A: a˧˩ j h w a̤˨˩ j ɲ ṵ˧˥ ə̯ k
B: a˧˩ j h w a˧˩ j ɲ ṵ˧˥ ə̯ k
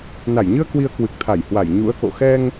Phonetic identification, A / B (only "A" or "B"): B